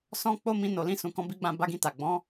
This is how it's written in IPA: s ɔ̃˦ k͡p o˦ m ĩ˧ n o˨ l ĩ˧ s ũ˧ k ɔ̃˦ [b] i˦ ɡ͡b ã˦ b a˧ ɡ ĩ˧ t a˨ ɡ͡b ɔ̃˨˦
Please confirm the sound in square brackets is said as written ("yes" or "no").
yes